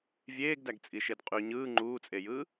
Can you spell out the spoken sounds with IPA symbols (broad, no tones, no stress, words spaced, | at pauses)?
vʲeːɡdæɡt͡sʼiʃed qʼy ɲɯː ŋ͡ǃuːt͡sʼejɯː